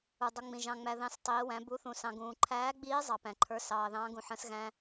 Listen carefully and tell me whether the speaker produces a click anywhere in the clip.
yes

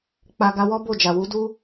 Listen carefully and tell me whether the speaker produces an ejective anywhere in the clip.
no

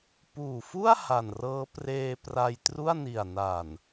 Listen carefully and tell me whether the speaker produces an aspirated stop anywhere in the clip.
no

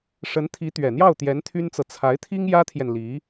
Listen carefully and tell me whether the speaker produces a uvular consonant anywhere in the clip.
no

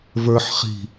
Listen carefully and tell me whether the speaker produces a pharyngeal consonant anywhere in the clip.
yes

